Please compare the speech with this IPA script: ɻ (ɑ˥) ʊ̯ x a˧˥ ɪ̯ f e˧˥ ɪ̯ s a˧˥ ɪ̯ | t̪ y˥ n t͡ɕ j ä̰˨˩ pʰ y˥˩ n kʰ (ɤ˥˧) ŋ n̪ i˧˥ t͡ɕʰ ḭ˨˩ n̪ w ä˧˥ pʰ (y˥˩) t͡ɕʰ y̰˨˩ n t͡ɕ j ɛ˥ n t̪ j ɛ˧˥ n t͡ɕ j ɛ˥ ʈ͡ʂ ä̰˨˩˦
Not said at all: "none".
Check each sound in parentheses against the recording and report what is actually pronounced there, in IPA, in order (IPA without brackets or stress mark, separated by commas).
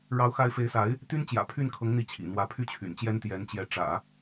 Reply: ɑ˧˥, ɤ˧˥, y˥˩